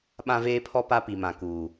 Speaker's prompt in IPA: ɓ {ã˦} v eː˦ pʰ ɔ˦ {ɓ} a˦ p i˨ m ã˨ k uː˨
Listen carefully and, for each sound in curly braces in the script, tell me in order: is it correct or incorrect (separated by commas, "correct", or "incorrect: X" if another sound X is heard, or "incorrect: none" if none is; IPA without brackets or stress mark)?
correct, incorrect: p